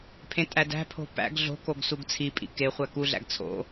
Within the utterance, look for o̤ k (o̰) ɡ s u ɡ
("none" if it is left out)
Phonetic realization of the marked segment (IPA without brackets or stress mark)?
o